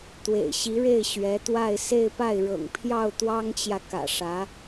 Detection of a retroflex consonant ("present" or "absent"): present